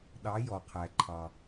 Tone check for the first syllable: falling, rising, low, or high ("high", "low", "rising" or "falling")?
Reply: rising